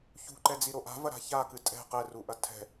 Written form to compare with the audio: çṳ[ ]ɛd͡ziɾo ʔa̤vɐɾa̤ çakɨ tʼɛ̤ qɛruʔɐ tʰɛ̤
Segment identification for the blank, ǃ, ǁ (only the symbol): ǃ